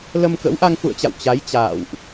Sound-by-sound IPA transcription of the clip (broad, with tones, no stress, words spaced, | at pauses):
lə˧mkə̰˧˥wʔa˧ŋ fṵ˧˨ə̯t͡ɕa̰˧˨w t͡ɕa˨˦jt͡ɕa̰ː˧˨wʔ